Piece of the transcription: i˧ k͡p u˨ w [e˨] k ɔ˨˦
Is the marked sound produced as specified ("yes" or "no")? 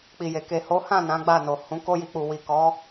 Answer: no